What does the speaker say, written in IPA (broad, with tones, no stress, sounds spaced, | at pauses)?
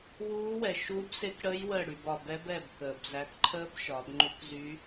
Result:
w uː˦˥ w ɛ˨ ʃ uː˦˥ b s e˦˥ k ɽ əː˦˥ j w əː˦˨ ɽ y˨ b ɒ˨ b ɛ˦˥ b ɛ˦˨ b k əː˨ b z æ˨˦ k ǃʰ əː˦˥ b ʃ ɒ˨˦ b ŋ͡ǃ u˦˥ k z y˦˥